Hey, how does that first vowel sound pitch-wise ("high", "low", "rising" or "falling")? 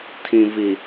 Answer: low